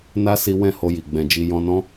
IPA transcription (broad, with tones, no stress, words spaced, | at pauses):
na˦ si˦ wɛ̃˦˨ho˧ji˨ ɡ͡bɛ̃˧d͡ʒi˦ jɔ̃˧nɔ̃˦